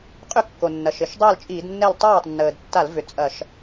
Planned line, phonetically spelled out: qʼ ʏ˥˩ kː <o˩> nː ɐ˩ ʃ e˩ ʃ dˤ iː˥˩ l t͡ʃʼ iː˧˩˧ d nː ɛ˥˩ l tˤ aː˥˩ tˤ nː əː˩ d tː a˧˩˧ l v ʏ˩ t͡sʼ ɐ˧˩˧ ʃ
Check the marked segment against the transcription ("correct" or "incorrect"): correct